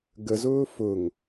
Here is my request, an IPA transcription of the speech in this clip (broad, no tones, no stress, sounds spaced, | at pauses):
ɡ ə z ʊː f ʊ ŋ